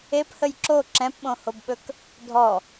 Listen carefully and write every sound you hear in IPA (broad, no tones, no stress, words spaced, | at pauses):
ephəj ǁo ǁɛ̃pɓõhobɓɵk | dʱɔ